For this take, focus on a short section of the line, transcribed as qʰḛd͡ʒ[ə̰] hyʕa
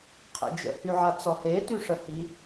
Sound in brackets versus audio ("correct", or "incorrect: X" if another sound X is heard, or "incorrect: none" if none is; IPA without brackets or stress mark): correct